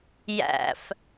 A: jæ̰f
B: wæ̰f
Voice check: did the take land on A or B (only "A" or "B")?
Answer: A